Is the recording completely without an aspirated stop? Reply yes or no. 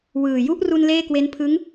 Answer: no